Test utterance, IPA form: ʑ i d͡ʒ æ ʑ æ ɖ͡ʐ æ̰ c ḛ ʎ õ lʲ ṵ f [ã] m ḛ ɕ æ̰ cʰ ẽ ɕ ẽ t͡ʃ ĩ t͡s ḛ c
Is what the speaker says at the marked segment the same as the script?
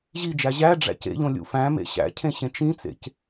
no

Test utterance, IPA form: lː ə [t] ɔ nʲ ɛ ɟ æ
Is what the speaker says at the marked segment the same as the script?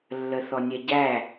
no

